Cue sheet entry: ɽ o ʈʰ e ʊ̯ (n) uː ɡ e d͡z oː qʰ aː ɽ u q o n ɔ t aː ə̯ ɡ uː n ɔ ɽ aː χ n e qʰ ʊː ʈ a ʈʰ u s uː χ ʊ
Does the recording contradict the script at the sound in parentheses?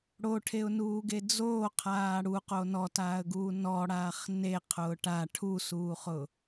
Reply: no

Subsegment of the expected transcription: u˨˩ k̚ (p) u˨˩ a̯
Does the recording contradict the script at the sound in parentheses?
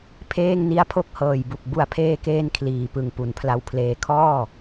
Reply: yes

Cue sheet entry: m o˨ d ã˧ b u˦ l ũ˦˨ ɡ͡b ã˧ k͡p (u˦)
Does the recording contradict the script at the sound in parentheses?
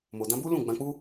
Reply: no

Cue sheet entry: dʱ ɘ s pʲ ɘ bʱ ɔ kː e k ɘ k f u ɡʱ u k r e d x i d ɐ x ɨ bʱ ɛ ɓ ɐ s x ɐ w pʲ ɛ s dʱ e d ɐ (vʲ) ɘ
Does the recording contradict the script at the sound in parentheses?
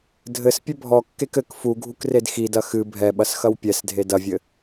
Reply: no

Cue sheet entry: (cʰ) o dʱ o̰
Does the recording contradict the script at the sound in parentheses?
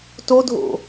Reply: yes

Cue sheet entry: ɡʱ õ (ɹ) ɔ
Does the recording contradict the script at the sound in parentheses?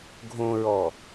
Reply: no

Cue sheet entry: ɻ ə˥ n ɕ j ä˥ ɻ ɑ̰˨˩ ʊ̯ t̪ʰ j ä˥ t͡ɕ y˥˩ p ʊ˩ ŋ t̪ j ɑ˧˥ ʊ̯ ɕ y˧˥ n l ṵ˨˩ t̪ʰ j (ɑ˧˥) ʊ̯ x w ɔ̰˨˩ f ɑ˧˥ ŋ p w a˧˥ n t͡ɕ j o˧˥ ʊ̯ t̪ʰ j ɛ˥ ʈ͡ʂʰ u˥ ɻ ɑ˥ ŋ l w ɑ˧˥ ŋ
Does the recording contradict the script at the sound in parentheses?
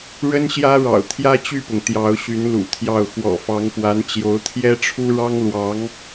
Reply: yes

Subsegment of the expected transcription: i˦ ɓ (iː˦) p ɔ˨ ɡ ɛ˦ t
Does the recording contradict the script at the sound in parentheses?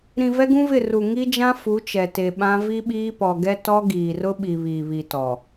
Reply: no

